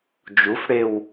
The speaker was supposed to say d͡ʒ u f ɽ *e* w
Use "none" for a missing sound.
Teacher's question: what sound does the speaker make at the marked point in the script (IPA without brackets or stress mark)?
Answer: e